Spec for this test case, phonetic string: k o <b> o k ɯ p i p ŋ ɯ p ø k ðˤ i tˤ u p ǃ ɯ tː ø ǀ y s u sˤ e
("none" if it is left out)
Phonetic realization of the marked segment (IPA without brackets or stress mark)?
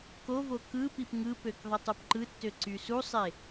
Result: v